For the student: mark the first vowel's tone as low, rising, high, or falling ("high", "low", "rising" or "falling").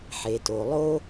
low